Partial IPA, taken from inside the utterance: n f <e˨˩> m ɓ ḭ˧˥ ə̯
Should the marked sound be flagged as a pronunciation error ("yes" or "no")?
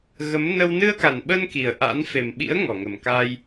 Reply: no